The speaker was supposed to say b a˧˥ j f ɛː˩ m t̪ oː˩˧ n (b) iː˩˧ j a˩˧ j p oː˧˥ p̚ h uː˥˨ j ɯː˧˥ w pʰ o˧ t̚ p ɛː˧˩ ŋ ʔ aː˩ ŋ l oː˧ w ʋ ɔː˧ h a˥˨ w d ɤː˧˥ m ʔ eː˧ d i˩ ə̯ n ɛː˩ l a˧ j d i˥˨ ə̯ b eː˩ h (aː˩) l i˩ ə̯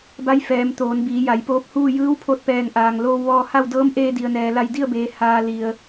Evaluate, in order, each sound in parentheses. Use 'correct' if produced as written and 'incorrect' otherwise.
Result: correct, incorrect

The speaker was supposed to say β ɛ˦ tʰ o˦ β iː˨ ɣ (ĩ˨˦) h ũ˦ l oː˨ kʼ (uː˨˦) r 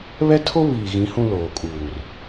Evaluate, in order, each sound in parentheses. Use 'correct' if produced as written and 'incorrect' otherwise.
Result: correct, incorrect

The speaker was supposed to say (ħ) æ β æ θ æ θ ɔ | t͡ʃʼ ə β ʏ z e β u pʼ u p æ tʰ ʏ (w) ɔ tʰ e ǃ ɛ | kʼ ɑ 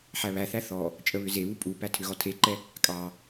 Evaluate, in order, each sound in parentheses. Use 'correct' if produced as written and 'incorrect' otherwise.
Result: correct, incorrect

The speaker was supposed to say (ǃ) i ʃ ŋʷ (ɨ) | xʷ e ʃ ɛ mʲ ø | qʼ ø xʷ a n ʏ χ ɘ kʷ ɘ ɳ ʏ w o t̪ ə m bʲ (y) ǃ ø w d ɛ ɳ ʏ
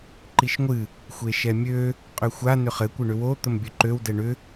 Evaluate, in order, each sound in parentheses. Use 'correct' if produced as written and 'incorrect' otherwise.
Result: correct, correct, incorrect

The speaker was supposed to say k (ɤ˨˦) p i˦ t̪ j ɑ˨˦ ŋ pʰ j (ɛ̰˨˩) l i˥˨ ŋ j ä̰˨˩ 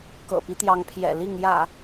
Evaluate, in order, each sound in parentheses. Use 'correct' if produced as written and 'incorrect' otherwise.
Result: incorrect, correct

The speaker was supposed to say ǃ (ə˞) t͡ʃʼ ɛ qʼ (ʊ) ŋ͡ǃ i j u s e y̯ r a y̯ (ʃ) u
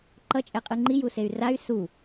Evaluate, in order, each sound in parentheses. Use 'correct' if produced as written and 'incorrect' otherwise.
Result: incorrect, incorrect, incorrect

